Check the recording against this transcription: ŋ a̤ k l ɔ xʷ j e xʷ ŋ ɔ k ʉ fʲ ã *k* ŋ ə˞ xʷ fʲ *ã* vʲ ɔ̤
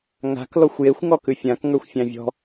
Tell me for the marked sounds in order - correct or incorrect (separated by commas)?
correct, incorrect